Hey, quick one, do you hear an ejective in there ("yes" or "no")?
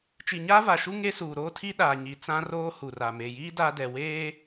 no